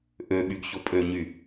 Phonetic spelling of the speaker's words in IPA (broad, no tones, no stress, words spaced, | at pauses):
ʔøɓyɡ çopʼøɲy